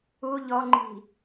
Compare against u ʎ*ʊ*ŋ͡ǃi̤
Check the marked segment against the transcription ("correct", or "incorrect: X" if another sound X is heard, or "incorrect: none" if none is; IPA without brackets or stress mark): incorrect: ɔ